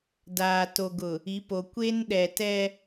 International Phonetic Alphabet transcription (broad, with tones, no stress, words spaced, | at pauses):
daː˨to˨ɡʊ˨ | i˨˦po˨ kʷe˦nɗɛ˨ tɛ˦